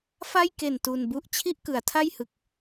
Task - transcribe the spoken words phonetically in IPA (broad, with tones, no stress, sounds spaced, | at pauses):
f a˥˩ j k e˨˩ n t u˧ n b u˥˩ ʔ t͡ɕʰ i˥˩ ʔ k ɯ˩˦ a̯ tʰ a˥˩ j h ɯ˨˩ k̚